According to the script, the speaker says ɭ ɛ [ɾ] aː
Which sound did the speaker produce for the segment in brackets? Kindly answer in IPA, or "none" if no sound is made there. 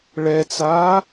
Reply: t͡s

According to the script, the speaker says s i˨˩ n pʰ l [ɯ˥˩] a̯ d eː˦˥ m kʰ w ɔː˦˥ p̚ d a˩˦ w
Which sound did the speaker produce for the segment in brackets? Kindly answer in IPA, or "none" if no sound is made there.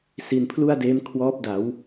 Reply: u˥˩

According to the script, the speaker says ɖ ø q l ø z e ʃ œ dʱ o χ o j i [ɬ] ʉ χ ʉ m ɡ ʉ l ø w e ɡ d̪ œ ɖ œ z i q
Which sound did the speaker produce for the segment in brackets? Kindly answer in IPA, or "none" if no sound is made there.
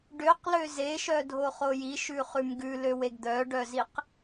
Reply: ʃ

